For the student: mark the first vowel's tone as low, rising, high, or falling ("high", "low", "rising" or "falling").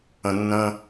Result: low